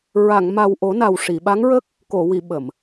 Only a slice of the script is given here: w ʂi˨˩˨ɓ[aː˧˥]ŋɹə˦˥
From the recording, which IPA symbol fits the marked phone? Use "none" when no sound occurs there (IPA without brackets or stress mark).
a˧˥